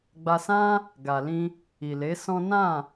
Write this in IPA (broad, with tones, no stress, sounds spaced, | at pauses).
ɡ͡b a˧ s ã˦ | ɡ a˨ l ĩ˧ | i˨ l e˨˦ s ɔ̃˦ n ã˦˨